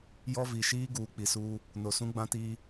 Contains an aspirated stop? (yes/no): no